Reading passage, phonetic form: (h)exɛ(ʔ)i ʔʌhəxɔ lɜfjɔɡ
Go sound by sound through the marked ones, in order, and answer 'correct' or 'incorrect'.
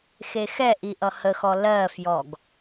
incorrect, correct

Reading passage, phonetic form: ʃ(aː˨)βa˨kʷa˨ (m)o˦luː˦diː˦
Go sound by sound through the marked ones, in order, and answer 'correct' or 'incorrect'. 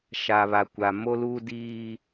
incorrect, correct

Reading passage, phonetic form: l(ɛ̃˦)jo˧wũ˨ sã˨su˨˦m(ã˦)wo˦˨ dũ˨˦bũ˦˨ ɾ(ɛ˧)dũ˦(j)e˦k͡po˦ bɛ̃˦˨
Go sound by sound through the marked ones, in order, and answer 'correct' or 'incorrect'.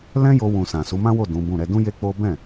correct, correct, correct, correct

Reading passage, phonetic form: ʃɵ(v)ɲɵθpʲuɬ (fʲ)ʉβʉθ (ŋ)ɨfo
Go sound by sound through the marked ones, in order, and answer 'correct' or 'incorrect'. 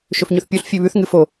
incorrect, correct, correct

